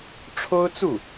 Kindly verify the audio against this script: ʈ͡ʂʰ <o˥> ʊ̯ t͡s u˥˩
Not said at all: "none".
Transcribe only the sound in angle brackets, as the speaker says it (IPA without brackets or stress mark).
o˥